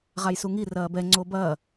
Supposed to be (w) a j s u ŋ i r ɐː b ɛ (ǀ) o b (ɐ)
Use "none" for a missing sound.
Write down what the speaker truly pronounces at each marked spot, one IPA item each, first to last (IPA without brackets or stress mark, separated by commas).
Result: ʁ, ŋ͡ǀ, ɐː